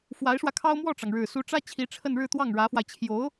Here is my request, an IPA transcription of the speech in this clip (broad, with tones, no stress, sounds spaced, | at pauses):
f w a˧˥ ɪ̯ ʂ w ä˧ kʰ ɑ˥ ʊ̯ m w ɔ˥˩ ʈ͡ʂ ɑ˩ ŋ ɻ ɻ̩˨˩ s u˧˥ ʈ͡ʂ ä˥ t͡ɕʰ i˧˥ ʈ͡ʂʰ ə˥˧ n ɻ ɻ̩˥˧ t̪ w ɑ˥˩ ŋ ɻ ä˧˥ f w a˧ ɪ̯ t͡ɕʰ j o˧˥ ʊ̯